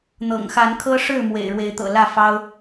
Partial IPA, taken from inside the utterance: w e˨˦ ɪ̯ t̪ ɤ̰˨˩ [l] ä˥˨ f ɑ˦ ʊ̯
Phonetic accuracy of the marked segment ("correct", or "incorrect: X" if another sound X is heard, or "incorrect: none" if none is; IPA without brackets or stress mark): correct